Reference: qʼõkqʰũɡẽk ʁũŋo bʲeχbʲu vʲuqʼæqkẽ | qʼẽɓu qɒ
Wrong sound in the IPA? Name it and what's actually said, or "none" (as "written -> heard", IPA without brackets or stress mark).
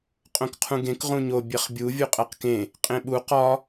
ŋ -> ɲ